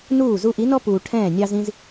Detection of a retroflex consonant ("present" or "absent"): present